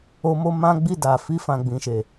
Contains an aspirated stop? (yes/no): no